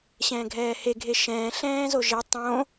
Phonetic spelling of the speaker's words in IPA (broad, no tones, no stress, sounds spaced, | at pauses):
ɕ ɛ̃ː ɡʱ ɛː h e ɡʱ e ʃ ɛ̃ː ɬ ɛ̃ː z o ʒ e tˤ õ